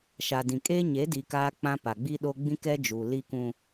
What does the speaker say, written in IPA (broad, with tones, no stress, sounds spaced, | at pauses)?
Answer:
ʃ a˨ d ĩ˨ kʼ eː˦ ɲ e˨˦ d i˨ k aː˦ k͡p ã˦ p a˨ ɡ͡b i˦ ɗ o˦ ɡ͡b ĩ˦ k ɛ˦ d͡ʒ u˨ l i˦ k ũ˦